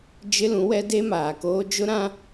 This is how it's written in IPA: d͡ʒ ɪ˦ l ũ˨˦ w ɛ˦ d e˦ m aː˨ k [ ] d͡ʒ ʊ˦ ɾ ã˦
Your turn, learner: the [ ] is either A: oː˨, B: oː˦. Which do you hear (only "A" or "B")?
B